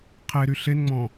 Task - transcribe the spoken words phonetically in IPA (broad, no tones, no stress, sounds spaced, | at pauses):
qʰ e ɾ y ɬ e n ŋ͡m ɔ̃